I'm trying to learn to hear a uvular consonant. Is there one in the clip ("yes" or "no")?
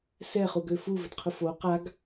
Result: yes